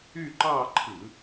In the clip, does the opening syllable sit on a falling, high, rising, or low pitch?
falling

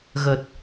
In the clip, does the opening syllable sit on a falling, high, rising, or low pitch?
low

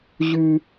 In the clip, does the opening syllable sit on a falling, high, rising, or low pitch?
high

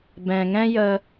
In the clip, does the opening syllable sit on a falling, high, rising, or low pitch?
low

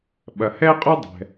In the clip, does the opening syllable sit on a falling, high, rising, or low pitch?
low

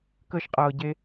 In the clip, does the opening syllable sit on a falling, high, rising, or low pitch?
high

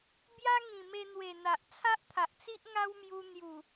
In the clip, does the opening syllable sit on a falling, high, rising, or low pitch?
high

